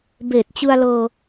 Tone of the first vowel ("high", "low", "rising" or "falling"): low